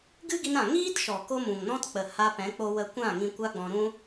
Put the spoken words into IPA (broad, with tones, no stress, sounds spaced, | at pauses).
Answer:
ɡ ɨ˦ ɡ i˧ n ã˨ ŋ iː˦ t ʃ ɔ˨ k o˦ m ũ˨ ŋ n ɔ̃˦ t k͡p ə˨ h a˧ p ɛ̃˨˦ k͡p o˧ w ə˧ kʷ ã˦˨ ŋ ĩ˧ kʷ a˦ ɡ͡b ɔ̃˧ ɾ ũ˦